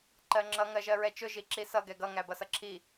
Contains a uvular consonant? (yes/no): no